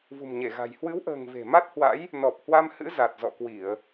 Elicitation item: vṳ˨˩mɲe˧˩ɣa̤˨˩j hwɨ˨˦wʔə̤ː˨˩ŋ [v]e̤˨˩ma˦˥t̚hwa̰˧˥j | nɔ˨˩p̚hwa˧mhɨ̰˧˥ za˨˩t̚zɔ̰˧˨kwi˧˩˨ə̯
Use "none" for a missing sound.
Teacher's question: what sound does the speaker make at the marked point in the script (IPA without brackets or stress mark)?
v